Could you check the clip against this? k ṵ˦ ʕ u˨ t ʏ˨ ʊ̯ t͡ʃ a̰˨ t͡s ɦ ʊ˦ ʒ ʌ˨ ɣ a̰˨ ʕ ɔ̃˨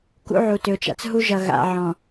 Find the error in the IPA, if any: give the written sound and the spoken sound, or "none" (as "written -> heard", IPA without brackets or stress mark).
ʊ˦ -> u˦